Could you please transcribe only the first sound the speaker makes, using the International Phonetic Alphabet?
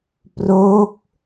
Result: p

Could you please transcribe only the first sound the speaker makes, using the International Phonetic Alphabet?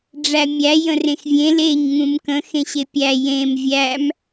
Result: ɖ͡ʐ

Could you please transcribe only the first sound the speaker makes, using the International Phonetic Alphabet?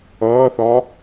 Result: ʌː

